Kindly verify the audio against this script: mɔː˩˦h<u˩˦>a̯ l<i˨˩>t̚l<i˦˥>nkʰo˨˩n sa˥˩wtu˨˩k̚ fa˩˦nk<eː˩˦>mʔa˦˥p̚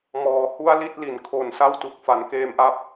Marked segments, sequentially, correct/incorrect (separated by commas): incorrect, incorrect, incorrect, incorrect